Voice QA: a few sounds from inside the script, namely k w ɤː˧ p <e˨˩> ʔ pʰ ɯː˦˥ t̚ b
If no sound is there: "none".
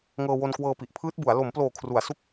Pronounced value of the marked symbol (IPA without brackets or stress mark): i˨˩